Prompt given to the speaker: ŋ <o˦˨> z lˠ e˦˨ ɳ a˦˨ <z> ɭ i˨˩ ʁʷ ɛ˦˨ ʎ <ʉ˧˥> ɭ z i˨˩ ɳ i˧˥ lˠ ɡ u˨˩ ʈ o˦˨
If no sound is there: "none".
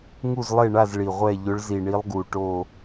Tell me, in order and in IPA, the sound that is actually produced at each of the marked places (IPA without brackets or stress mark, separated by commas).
u˦˨, z, ʊ˧˥